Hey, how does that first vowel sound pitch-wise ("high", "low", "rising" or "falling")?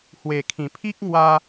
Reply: low